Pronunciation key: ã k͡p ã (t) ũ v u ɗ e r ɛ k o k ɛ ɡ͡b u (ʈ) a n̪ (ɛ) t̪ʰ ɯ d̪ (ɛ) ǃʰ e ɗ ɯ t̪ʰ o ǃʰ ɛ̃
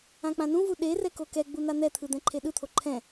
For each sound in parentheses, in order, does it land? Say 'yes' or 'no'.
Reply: no, no, yes, no

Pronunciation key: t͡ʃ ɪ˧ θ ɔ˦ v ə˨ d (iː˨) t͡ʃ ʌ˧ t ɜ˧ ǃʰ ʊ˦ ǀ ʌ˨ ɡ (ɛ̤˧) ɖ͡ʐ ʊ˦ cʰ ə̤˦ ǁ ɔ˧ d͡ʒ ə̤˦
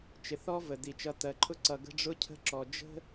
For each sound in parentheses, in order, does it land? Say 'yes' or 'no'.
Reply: no, no

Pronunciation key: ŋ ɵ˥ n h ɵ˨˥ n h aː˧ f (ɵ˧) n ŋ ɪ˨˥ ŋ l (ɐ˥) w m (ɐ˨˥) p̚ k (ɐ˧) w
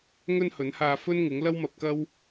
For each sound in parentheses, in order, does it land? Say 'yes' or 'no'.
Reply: no, yes, no, no

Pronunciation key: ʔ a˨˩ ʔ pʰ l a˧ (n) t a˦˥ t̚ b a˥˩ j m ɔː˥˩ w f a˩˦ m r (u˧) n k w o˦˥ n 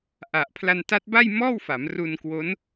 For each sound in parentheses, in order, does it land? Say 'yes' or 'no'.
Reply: yes, yes

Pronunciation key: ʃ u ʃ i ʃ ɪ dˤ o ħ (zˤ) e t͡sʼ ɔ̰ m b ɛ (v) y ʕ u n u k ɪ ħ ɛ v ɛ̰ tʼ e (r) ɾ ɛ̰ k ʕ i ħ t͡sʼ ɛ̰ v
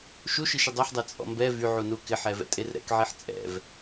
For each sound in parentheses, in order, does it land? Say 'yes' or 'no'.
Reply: no, yes, yes

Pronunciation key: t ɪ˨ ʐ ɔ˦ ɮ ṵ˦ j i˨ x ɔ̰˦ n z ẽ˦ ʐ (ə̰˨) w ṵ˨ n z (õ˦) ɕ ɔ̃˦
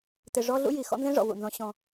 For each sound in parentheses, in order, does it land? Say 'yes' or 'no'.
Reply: no, no

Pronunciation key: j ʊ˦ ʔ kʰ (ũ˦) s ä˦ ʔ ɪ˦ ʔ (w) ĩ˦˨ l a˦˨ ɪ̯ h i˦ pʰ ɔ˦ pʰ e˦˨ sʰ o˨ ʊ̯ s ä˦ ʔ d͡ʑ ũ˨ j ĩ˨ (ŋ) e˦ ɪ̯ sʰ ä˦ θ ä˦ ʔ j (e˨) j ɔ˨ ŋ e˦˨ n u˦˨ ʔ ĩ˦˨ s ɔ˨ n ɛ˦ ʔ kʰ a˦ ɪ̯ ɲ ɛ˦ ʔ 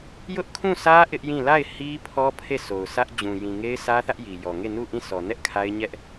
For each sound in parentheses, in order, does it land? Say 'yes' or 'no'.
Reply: no, no, yes, no

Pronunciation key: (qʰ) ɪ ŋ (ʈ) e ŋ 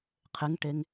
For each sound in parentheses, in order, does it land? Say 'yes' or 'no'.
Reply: yes, yes

